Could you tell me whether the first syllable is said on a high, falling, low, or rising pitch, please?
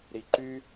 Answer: low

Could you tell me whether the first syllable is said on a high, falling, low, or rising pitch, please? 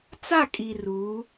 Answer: falling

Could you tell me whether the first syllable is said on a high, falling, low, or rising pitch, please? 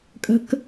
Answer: low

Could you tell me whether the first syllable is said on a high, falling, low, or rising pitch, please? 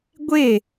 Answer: falling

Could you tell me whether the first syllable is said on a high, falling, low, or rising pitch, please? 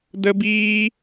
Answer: high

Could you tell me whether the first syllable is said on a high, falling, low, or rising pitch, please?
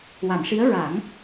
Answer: low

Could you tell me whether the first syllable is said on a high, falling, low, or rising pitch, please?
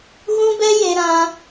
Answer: high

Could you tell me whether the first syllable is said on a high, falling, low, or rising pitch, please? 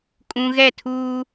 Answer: high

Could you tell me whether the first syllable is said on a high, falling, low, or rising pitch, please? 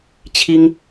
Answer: high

